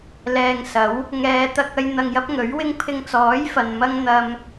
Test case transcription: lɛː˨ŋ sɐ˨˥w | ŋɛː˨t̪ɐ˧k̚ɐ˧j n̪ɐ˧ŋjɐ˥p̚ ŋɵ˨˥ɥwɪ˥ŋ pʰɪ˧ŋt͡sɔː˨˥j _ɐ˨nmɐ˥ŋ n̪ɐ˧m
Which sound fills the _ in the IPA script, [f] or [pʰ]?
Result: f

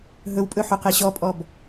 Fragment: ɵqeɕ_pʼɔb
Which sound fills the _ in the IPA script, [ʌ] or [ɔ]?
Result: ɔ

